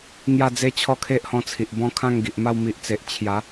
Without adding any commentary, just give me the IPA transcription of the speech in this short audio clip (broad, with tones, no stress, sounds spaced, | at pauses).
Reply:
ŋ j a˥˧ d͡z e˦ t͡ɕʰ ɔ˦ kʰ e˦ ʔ h ɔ̃˧ t͡sʰ i˨ ʔ b ɔ̃˥˧ kʰ ã˥˧ ŋ ɡ i˨ ʔ m a˥˧ w m i˨ ʔ t͡s e˨ ʔ t͡ɕʰ j a˨˦